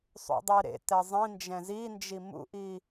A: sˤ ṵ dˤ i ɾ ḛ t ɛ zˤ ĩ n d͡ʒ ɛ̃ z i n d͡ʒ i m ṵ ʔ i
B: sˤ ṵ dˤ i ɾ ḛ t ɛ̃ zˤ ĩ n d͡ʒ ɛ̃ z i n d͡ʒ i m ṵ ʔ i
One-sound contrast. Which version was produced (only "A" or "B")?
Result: A